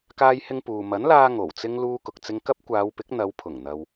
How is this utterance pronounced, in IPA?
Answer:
kaː˧jhɪ˧ŋ puː˨ mɐ˨˥nlaː˧ ŋo˨˩wt͡sɪ˥ŋ luː˧kʊ˨k̚t͡sɪ˧ŋkɐ˥p̚ kʷaː˨˧wpɪ˨˥k̚ n̪ɐ˨˧w pʰʊ˨˩ŋn̪ɐ˨w

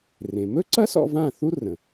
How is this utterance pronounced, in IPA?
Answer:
rẽ˩mɵ˥ǀɐ˥s ɔ̰˧vã˥˩θu˥ rə̃˩

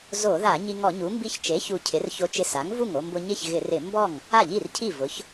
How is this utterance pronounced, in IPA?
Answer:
zo˧˩˧ða˧˩˧ ɲi˧ŋɔ˧˩˧ɲu˩˥ mbi˧çt͡ʃe˩˥çu˨˩ cʰɪ˩˥rço˧ t͡ʃɪ˧sa˩˥ŋvu˥˩ŋo˧ mbʊ˧ɲɪ˥˩çɣɪ˧˩˧rɪ˧˩˧ mbɔ˥˩ŋ | a˥˩ʎi˥˩rcʰi˥˩vʊ˩˥ç

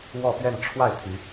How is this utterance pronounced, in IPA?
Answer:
wɔ˥˧pɥɛ˥˧n ʈ͡ʂʰwa˥˩ɪ̯ t̪ʰy˧˥

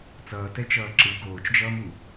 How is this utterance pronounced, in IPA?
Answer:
t͡sʌːtɛt͡ʃʌː ǁɯ ɡoːt͡ʃd͡ʒʌːmu

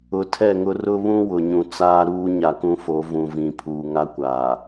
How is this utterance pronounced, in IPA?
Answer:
ʊ˨ tʰɛ˦˨ŋʊ˦ rʊ˦βũ˦ wʊ˨ɲũ˨ t͡saː˦ɾuː˦ɲa˨ kũ˦fo˨˦ vũ˨vĩ˨pʰuː˨ ŋa˦kʷaː˨

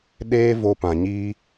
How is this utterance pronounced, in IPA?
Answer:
ɗeː˦ vo˧pã˨ɲiː˦

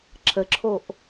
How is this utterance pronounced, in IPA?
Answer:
ǁʰəǁʰoʔ

